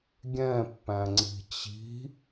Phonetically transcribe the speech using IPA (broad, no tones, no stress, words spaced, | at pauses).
ɡʲɛ̃pːæ̃ŋ͡ǀi̤ t͡ɕi̤